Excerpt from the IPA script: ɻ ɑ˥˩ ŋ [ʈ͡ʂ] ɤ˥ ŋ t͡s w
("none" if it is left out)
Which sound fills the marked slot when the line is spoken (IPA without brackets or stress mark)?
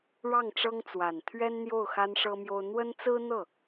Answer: ʈ͡ʂ